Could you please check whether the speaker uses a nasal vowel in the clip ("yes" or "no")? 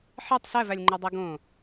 yes